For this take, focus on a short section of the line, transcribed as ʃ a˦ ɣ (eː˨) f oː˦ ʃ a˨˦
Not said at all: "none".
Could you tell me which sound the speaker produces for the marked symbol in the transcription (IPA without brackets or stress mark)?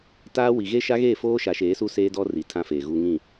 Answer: eː˦˨